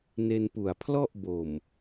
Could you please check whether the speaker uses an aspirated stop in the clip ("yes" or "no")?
yes